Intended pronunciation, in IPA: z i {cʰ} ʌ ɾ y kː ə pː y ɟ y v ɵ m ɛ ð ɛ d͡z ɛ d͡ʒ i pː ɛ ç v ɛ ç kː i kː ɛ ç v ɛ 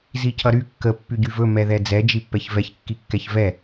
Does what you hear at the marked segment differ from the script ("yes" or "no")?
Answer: no